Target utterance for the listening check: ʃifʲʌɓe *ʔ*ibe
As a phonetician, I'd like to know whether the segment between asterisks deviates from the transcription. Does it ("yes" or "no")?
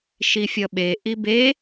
no